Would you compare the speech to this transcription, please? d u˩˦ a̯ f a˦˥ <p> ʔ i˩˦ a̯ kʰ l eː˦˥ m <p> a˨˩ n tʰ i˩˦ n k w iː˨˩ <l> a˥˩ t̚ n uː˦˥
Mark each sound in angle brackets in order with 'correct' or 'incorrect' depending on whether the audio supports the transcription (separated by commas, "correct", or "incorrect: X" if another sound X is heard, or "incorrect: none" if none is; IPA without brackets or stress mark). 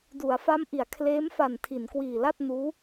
incorrect: m, incorrect: f, correct